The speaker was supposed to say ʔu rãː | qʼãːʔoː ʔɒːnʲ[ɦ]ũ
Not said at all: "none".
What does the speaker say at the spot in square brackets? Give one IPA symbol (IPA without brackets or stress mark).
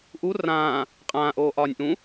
ʔ